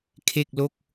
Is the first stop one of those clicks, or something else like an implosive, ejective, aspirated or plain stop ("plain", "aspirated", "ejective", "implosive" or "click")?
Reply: aspirated